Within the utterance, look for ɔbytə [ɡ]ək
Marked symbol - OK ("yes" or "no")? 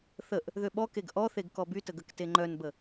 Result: yes